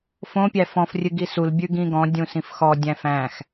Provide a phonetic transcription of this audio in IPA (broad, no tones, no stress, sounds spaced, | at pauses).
f õ pʲ æ f ɔ̃ f rʲ ɨ ɡ i s u l bʲ ʉ ɡ ĩ ɡ ɔ̃ dʲ ũ s ĩ f x ɔ dʲ æ̃ f æ̃ x